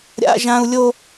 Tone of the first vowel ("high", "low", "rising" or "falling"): high